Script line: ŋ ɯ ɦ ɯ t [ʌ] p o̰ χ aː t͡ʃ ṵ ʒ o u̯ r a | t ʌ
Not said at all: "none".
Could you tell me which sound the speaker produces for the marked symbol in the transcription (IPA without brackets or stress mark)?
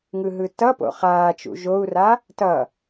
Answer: ʌ